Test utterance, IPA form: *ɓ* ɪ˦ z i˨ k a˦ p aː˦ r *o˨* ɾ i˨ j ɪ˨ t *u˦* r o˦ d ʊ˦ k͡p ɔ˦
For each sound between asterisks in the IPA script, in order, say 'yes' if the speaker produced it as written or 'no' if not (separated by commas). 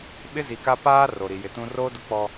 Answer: yes, yes, no